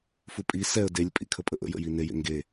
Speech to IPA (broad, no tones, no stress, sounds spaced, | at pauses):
f u pʼ i s ɛ ə̯ d e lʲ pʼ ḭ kʰ ə pʼ ə ʔ ə̰ j ə̰ j i n e j ḛ ŋ ɡ e